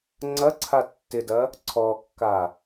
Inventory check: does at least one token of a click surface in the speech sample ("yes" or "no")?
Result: yes